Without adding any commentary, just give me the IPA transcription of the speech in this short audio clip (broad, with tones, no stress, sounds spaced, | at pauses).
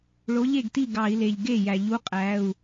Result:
ɭ o˨˥ ʎ e˥˩ ɡ t i˥˩ ɡ ɑ˧˩˧ i̯ l e˩ ʎ ɡ e˥˩ j æ˩ ʎ u˨˥ qʼ æ˩˧˩ u̯